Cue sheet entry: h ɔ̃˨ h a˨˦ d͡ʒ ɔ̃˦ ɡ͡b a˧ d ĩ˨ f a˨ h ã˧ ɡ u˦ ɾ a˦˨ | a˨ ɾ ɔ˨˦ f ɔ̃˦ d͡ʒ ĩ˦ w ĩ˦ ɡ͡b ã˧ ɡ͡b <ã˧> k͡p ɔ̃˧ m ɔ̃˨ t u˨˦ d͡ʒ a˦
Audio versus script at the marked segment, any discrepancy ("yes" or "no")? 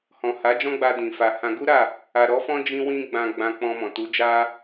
no